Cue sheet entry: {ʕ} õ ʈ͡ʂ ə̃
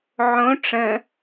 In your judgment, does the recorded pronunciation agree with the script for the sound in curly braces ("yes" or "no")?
yes